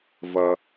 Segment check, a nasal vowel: absent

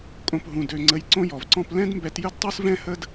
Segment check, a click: present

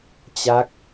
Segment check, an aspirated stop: absent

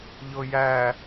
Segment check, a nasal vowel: absent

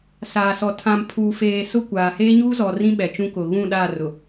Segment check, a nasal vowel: present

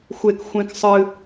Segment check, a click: absent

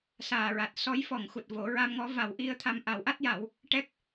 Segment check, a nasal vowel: absent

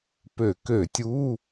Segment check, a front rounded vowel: present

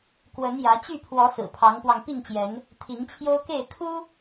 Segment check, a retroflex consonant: absent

